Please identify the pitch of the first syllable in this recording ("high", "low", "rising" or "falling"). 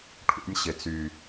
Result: high